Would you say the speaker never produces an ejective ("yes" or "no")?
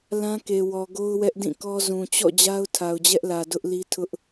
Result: yes